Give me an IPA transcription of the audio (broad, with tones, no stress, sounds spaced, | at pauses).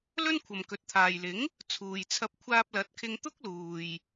l ɵ˥ n kʷʰ ɐ˨ m k ɵ˨ t̚ t̪ʰ aː˨ j l ɪ˨˥ ŋ | t͡sʰ uː˨ j t͡sʰ ɐ˧ p̚ kʷʰ aː˧ p̚ l ɐ˨˥ t̚ kʰ ɪ˧ ŋ t̪ ʊ˥ k̚ l uː˨ j